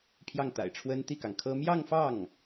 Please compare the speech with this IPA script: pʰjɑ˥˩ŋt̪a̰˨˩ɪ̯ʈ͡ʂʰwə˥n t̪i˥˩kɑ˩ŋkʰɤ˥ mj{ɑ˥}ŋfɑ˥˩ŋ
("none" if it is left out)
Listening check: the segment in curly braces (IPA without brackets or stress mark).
ɑ˥˧